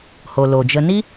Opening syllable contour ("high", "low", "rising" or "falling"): low